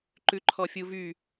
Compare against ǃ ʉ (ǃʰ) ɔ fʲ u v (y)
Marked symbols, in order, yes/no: yes, yes

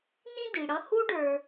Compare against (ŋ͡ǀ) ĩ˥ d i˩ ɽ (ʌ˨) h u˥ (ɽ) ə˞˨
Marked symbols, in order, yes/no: no, no, no

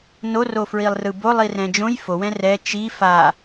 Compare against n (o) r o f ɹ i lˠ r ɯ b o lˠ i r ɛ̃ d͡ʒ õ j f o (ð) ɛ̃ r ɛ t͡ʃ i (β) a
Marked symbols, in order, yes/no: yes, no, no

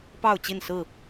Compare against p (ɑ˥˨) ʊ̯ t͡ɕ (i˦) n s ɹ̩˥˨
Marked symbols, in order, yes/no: yes, no

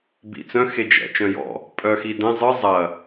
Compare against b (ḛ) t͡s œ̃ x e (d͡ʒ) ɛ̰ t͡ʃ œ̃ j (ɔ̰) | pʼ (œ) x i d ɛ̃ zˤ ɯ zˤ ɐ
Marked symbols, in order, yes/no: no, yes, yes, yes

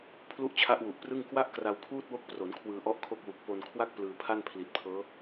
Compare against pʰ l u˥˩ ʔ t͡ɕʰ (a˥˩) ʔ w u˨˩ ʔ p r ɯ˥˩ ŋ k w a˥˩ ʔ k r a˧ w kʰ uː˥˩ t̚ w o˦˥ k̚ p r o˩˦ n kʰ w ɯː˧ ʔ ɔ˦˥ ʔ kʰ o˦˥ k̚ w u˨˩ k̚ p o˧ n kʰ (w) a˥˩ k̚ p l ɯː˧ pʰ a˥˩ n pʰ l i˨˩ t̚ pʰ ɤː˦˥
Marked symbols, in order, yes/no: no, yes

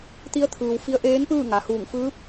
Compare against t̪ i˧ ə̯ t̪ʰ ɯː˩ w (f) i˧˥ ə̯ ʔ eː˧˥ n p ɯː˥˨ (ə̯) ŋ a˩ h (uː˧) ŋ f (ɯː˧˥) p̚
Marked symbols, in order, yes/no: yes, no, no, yes

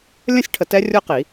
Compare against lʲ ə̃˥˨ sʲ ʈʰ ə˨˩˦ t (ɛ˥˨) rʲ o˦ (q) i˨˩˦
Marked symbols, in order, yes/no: no, yes

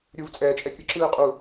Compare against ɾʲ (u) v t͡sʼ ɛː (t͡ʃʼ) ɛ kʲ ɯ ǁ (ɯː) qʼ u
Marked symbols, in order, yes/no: yes, yes, yes

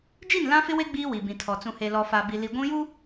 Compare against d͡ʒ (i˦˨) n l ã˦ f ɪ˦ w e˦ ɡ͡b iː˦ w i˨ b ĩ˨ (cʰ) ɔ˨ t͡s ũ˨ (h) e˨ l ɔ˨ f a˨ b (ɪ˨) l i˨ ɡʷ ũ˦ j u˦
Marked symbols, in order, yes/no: yes, no, yes, no

